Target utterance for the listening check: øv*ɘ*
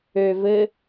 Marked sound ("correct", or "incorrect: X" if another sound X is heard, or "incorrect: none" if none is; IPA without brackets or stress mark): correct